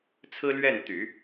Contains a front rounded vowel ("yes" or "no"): yes